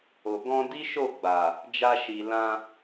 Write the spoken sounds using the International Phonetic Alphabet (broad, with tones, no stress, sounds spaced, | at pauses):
o˨ ɡ ɔ̃˧ d i˦ ʃ o˦˨ ɡ͡b a˨ | d͡ʒ a˧ ʃ i˨ l ã˧